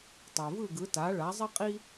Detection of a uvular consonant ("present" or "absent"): present